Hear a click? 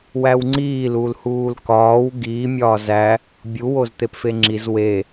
yes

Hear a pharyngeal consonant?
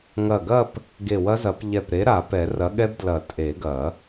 no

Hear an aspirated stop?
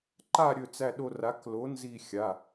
no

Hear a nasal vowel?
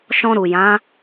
yes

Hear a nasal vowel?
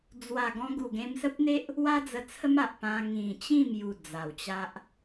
yes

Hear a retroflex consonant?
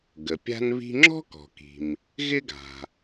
no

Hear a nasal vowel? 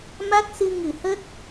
no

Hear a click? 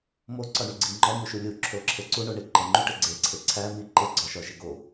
yes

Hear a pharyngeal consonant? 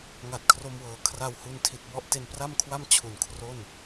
no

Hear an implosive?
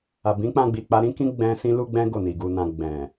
no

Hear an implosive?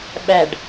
yes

